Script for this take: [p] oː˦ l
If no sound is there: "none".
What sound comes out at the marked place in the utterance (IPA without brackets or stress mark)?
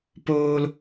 p